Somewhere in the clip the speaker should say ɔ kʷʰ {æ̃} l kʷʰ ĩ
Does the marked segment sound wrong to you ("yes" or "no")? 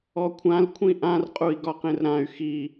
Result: yes